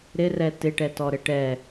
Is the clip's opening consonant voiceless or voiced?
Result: voiced